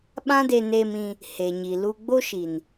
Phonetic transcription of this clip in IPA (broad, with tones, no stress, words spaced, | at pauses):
ɓã˦de˧neː˧mĩ˧ | he˨ɲi˨ lu˧ ɡ͡bo˦ʃi˨n